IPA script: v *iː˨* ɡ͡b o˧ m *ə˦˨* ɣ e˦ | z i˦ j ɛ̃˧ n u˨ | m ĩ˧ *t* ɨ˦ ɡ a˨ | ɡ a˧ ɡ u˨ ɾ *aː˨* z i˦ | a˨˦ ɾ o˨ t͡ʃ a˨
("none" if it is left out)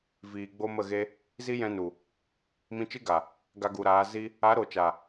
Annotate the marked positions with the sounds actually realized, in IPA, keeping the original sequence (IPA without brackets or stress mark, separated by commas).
iː˨, ə˦˨, t͡ʃ, aː˨˦